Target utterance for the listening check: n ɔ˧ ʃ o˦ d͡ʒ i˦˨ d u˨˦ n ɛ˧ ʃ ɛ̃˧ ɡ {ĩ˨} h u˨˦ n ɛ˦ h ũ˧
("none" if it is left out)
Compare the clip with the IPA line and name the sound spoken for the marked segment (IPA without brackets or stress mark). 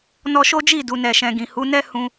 ĩ˨